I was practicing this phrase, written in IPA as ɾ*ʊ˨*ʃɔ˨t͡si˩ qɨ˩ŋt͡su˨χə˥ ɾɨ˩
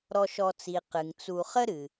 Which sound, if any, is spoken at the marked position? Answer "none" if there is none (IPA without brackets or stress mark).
ɔ˨